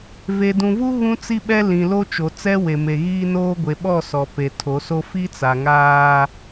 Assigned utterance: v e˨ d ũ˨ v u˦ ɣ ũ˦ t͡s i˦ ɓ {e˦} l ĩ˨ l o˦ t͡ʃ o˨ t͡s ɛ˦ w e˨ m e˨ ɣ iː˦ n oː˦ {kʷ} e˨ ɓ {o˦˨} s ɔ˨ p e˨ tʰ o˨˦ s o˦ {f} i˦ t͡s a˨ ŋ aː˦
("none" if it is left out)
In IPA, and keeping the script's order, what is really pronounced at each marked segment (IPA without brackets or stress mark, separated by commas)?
ɛ˦, ɡʷ, ɔ˦˨, f